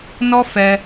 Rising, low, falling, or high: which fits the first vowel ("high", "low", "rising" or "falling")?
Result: high